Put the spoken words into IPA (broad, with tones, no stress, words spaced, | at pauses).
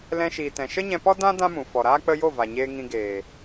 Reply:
lɛ̃˧ʃiː˨tɛ̃˨ ʃə˦ɲɛ̃˧pɔ˦ dã˦ dã˦mũ˨ fɔ˨ɾaː˦k͡pə˦ jo˦˨va˨ɲeː˧ ŋĩ˧ɡeː˨